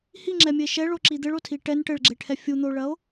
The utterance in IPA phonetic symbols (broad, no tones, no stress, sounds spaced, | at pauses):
h i ŋ͡ǁ ɛ mʲ ɘ e̯ ʃ ɛ ɭ o ǁ i d̪ ɘ ɭ o tʰ i ʈ ɛ n ʈ ɘ ɭ ɡ͡ǁ e ʈʰ ɛ fʲ u n̪ o ɭ ɐ o̯